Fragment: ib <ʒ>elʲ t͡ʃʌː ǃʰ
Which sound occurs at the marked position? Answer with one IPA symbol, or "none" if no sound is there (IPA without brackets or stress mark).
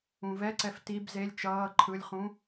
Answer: z